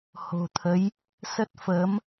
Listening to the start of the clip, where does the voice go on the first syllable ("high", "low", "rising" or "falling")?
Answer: low